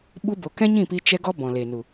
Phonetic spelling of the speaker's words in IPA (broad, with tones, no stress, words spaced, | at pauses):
ɓu˧bo˨ kɛ̃˦ɲĩ˦˨pi˧ t͡ʃɛ˧ɡɔ˧ bɔ̃˨ le˨nu˨